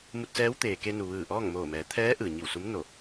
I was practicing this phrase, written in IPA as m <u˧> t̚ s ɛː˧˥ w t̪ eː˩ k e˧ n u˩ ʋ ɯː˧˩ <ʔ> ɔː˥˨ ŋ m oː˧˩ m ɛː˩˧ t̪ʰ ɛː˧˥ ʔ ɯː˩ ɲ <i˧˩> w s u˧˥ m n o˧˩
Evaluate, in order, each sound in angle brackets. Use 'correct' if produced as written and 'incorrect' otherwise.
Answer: correct, correct, correct

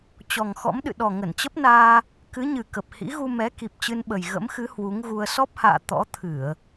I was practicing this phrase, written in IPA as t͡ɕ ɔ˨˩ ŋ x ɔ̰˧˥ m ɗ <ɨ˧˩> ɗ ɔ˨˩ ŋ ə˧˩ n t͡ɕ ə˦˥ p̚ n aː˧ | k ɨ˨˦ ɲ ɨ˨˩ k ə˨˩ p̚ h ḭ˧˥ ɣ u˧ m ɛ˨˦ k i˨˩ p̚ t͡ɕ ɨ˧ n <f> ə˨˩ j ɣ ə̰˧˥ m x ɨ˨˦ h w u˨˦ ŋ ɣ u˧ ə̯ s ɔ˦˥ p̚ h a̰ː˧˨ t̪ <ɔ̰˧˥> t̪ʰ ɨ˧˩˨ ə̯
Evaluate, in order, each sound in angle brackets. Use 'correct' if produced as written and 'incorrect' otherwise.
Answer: incorrect, incorrect, correct

